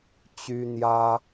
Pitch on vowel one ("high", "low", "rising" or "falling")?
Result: high